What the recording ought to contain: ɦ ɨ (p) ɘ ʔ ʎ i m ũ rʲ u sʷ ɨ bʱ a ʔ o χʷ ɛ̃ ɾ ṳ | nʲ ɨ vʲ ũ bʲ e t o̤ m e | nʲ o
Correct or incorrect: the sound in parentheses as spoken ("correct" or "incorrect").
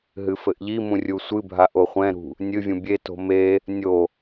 incorrect